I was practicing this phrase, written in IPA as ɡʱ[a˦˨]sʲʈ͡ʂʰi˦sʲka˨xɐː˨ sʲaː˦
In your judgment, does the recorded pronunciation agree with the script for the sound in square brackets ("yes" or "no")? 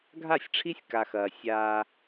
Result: yes